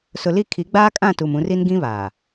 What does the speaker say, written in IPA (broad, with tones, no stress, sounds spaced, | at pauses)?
s ʊ˨ l i˦˨ kʰ i˨˦ ɡ͡b aː˦ kʼ ã˦˨ t u˨ m ũ˨˦ r i˦ n ɡ ĩ˦ β aː˨